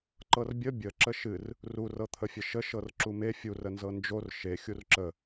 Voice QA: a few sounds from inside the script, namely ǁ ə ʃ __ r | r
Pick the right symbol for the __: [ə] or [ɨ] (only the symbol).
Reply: ɨ